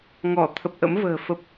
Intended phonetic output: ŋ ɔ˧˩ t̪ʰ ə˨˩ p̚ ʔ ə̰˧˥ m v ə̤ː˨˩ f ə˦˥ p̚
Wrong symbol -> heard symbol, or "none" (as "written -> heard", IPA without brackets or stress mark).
none